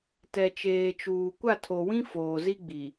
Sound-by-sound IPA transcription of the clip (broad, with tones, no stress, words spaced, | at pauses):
tɛ˨t͡ʃeː˨t͡ʃuː˨ kʷa˦˨tʰo˨wĩ˦ foː˨zi˦ɡ͡bi˨